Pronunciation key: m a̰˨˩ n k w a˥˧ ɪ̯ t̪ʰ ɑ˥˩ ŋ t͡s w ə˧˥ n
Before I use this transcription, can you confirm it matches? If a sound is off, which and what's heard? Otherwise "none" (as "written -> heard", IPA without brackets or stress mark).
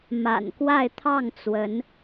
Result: none